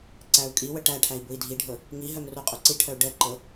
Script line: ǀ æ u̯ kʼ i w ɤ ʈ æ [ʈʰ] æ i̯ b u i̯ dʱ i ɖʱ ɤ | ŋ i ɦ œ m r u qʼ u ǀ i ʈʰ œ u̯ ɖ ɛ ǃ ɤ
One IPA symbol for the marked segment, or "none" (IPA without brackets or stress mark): ʈʰ